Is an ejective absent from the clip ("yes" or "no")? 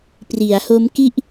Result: yes